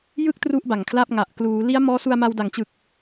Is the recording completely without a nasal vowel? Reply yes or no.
yes